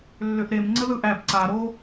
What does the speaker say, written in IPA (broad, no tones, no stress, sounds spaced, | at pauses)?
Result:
lː ʏ ʔ ɾ e m ŋ͡ǀ ə ð ɯ ʔ æ b ǀ a ɾ o